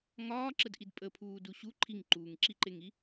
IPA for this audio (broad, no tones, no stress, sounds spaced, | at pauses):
ŋ ɒː ǁ ə d ʔ i d pʼ ə pʰ uː d u ɕ u ǃʰ i ŋ ǃ uː ŋ ǁ i ǃ e ŋ i